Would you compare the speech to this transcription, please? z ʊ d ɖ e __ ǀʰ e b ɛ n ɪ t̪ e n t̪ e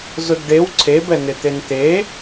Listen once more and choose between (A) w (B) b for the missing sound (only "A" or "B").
A